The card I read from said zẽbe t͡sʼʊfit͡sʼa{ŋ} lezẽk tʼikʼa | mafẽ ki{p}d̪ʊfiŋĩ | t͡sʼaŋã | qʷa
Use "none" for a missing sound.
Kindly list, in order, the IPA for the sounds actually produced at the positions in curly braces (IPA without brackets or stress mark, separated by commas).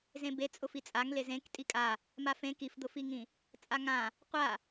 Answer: ŋ, f